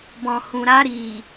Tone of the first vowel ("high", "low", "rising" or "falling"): low